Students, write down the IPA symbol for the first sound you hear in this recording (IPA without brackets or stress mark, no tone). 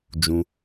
d͡ʒ